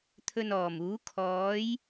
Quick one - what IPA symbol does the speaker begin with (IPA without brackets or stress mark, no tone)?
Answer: t̪ʰ